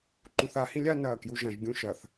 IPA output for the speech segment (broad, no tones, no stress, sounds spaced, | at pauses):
ǃ ũ θ a h ĩ lʲ a n ɐː k j u ʒ ɐ̃ ʒ ɡʲ ũ ʃ ɐ θ